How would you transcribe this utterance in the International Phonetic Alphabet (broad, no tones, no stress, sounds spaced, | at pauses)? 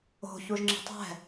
o̤ ç u ʒ ŋ͡ǁ ə̤ tˤ ɛ̤